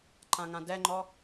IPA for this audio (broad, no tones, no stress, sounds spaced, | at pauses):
ǃ ã ŋ ã d ɛ ŋ͡ǃ ɔ